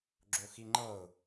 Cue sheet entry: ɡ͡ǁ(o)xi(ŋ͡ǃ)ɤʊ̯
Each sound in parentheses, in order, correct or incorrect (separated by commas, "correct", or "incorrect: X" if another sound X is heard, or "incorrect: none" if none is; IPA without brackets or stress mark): correct, correct